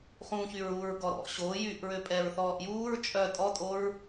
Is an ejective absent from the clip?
no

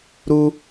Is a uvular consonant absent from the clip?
yes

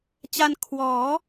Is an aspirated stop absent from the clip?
no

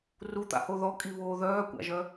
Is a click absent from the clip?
yes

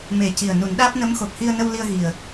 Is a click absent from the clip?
yes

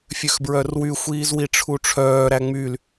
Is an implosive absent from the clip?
yes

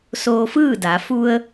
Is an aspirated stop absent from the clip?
yes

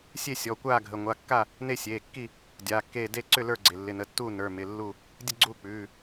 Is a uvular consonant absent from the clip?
yes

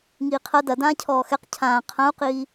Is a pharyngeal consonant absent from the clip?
yes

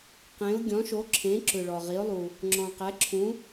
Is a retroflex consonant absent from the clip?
no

